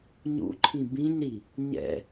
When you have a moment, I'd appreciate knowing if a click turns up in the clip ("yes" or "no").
yes